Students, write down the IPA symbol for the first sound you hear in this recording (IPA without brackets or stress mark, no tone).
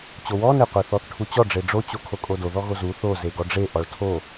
t͡ɕ